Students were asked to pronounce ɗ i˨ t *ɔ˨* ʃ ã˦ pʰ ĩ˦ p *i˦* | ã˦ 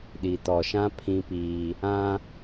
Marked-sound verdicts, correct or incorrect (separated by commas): correct, incorrect